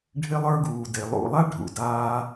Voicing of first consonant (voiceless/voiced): voiced